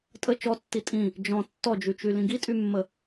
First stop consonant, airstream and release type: ejective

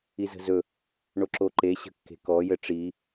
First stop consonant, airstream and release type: click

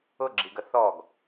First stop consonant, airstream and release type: click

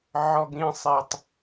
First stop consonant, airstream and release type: plain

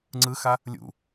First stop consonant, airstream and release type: click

